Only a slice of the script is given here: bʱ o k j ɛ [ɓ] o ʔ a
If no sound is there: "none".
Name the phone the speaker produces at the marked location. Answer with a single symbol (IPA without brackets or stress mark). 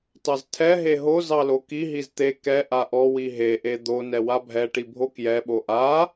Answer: ɓ